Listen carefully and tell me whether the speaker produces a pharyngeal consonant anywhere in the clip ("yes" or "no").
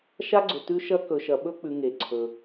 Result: no